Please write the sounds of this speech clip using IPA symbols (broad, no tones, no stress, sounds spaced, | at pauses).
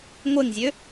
ŋʷ e ŋ zʲ ø